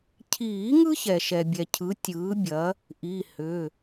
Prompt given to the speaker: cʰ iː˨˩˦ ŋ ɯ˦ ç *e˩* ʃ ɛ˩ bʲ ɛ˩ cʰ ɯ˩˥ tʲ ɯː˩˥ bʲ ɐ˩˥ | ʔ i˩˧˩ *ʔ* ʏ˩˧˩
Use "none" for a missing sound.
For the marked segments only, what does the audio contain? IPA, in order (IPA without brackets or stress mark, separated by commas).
ɛ˩, h